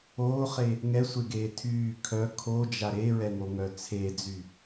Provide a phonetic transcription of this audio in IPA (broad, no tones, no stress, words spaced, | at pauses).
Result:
oːχe | ŋɛsʷeɡeː tʰyː kʰœ kʰod͡ʒa ɾeɹɛŋoŋœ t͡sʰed͡zy